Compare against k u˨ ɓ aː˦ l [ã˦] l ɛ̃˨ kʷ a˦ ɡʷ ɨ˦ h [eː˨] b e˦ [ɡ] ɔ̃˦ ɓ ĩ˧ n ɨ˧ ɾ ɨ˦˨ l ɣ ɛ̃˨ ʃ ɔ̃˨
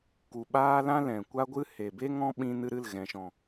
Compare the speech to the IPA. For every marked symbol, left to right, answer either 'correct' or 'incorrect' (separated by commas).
correct, incorrect, incorrect